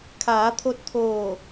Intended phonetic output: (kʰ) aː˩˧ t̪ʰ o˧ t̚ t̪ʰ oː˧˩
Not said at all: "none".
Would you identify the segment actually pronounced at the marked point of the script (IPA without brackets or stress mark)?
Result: kʰ